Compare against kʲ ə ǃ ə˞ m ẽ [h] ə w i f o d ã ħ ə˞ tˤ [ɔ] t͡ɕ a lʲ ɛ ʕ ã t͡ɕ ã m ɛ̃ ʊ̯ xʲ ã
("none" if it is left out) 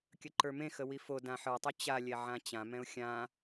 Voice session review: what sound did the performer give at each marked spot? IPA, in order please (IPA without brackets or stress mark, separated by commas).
x, ɵ